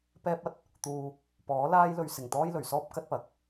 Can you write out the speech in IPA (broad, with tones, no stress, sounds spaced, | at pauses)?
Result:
p ɛː˥ p̚ ɐ˨ t̚ | t̪ uː˧ | p ɔː˨˥ l aː˥ j l ɵ˧ ɥ s ɪ˨˩ ŋ t̪ ɔː˥ j l ɵ˨˩ ɥ s ɔː˥ p̚ k ɐ˥ t̚ p ɐ˨˥ k̚